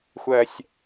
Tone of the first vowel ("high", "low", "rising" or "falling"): low